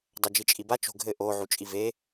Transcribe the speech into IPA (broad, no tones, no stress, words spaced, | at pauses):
dˤɐd͡ʒit͡ʃʼibat͡ʃ o̤ɡʱɘ ʔo ʕut͡ʃʼive